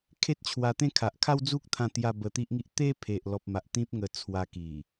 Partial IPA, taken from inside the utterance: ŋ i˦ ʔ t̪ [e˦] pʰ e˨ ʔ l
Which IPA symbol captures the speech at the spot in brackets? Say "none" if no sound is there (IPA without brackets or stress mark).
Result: e˦